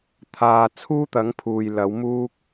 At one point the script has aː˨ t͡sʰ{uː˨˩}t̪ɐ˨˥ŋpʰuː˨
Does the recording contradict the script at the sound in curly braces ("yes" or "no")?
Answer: yes